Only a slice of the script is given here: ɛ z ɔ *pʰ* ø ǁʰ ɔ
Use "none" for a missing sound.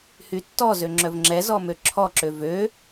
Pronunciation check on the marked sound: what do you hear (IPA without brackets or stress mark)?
m